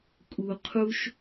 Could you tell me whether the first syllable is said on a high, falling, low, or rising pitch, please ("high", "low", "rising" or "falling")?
low